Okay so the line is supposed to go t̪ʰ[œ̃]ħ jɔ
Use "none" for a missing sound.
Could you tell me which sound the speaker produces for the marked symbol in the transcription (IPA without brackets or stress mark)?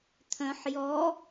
œ̃